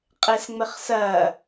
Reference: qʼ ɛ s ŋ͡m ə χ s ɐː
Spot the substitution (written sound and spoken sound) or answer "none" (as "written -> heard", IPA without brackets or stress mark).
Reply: none